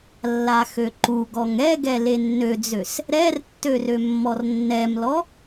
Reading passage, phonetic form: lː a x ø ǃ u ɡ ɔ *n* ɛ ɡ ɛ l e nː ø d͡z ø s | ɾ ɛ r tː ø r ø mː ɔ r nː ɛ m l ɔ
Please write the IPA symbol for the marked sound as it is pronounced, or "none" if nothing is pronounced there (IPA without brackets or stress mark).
ŋ